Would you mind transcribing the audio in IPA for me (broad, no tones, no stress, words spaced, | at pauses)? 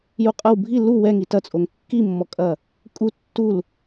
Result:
juqʼɐw bʱi lu wɛŋi tɐt͡sʼoŋ kːimːɔkʼɐ | kʼu tːul